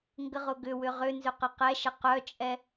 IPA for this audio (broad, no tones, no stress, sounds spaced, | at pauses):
ŋ ɡ ə ʁ ʊ ɡ ʏ w ʏ ʁ ʏ n z ʏ q ə q ɛ ʃ ə q œ t͡ʃʼ ɛ